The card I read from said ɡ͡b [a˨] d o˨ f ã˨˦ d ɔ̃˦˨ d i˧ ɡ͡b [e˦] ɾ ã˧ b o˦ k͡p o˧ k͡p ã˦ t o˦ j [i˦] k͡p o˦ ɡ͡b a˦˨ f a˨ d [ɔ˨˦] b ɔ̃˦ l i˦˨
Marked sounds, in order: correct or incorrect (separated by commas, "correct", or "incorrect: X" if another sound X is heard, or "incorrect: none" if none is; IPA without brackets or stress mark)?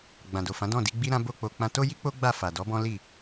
incorrect: ã˨, incorrect: i˦, correct, correct